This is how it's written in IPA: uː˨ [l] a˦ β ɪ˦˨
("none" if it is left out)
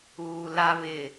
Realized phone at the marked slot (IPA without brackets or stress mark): l